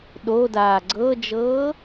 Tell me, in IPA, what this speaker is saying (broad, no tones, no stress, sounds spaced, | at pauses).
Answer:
ɗ o d aː ɡ͡ǀ ɤ d͡ʒ ɤː